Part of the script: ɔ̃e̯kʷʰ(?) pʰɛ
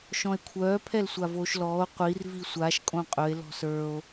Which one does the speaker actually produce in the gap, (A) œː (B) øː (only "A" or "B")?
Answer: A